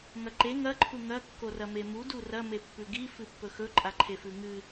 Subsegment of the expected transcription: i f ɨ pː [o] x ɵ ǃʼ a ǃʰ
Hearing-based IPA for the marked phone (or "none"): ɵ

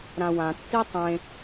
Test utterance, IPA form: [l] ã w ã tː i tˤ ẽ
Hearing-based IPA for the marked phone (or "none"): ɾ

